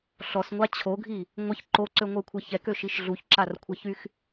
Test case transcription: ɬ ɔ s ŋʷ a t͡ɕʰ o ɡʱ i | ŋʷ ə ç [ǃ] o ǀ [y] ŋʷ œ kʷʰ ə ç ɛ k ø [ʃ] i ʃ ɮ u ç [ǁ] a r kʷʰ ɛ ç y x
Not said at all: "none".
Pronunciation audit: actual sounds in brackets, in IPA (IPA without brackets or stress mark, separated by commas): ǃ, ø, ʃ, ǁ